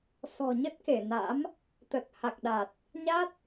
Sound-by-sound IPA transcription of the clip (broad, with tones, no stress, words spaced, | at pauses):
sɔ̤˨˩ɲə˦˥t̚ ke˧˩na̰˧˥m | t̪ə˨˩t̚ha˨˩k̚ɗa˨˩t̚ | ɲa˦˥t̚